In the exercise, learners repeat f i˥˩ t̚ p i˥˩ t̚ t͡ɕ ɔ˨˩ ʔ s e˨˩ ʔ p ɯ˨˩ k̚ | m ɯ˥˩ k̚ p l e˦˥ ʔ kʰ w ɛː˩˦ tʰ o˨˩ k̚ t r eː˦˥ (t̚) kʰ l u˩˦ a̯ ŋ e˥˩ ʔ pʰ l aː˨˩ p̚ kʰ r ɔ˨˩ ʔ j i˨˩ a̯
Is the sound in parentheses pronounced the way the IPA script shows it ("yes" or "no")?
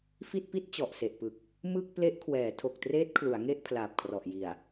yes